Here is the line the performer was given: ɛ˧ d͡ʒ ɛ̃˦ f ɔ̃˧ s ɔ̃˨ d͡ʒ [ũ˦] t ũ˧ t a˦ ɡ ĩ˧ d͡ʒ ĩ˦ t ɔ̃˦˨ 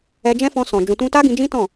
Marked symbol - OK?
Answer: no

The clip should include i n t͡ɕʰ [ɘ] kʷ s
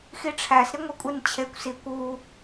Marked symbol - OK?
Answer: no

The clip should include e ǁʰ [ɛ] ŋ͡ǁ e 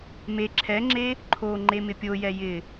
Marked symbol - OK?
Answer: yes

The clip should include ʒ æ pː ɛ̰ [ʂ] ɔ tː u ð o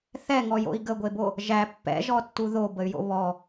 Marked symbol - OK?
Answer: no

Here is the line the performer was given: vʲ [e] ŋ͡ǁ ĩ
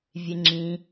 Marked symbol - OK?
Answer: yes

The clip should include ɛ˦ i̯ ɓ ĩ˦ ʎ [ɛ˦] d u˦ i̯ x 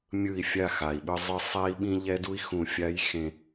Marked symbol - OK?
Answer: yes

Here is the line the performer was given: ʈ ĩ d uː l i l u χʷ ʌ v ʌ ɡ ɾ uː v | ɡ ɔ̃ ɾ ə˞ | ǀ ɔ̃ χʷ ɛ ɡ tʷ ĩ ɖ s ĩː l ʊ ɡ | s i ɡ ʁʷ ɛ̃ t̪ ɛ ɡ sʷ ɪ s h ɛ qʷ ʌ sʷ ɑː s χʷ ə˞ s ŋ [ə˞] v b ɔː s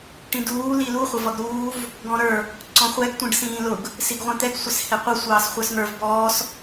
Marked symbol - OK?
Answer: yes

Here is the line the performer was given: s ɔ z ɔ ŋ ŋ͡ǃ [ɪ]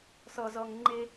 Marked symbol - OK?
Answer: yes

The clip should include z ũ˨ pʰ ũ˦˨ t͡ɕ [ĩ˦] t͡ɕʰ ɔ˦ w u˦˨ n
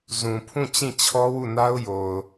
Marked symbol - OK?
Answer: no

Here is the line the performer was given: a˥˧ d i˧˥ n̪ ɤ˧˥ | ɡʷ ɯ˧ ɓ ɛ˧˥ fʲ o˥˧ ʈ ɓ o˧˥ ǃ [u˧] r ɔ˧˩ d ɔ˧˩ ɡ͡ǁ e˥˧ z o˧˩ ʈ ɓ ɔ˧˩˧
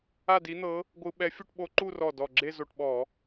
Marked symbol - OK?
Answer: no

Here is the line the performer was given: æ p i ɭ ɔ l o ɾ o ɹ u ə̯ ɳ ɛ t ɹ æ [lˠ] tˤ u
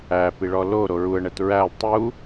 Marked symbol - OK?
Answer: yes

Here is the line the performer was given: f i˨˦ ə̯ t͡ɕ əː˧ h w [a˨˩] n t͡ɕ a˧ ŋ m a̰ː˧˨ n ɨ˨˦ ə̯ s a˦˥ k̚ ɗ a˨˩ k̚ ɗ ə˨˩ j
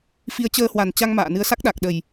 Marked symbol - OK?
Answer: yes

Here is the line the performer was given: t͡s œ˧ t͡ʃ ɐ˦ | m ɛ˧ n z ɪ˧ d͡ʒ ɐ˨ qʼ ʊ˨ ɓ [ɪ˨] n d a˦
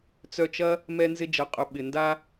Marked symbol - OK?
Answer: yes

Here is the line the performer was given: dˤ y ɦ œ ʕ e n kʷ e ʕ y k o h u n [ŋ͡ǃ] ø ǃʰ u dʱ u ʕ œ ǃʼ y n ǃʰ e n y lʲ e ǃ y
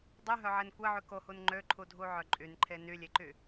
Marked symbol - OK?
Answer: yes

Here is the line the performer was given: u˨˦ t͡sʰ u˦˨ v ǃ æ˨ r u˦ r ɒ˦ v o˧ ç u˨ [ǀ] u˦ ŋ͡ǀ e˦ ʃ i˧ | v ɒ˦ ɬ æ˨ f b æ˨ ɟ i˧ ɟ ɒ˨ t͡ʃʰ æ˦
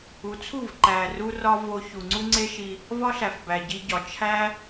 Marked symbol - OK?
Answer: no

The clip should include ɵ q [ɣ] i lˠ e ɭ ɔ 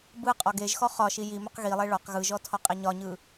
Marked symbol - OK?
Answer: yes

